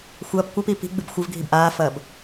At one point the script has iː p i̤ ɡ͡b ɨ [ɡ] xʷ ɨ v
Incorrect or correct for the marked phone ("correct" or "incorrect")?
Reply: incorrect